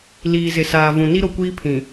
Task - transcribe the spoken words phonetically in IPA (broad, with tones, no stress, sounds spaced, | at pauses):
l iː˨ z ɪ˨ s aː˨ v ũ˨ n i˦ ɾ o˨ kʷ iː˦ pʰ ĩ˨